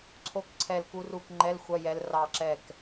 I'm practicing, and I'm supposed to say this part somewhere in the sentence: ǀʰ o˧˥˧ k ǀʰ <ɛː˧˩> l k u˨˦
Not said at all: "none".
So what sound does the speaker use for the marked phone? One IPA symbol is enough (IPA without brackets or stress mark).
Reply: ɛ˧˩